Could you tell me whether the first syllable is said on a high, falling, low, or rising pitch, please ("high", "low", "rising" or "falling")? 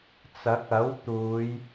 rising